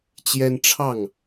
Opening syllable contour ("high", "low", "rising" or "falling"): high